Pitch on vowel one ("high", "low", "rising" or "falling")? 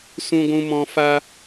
high